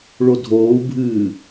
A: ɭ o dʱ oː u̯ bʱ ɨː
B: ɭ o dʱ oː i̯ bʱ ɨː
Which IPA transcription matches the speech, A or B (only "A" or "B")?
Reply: A